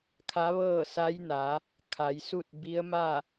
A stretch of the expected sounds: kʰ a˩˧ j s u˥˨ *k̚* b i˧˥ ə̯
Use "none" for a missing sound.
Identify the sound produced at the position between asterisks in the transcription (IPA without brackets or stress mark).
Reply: t̚